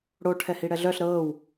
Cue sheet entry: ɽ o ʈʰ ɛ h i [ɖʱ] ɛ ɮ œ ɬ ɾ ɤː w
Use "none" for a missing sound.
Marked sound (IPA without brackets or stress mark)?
ɽ